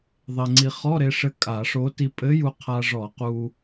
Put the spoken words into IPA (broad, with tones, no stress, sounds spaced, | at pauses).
ðˤ e˧ ŋ͡ǀ i˧ χ ɔ˧˥˧ ɾ e˧ ʂ ɘ˧ kʼ a˧˩˧ ʂ o˧˥ t i˧ pʼ ɘ˧˥ j u˧ qʰ a˧ ʐ ɔ˧˩˧ q u˧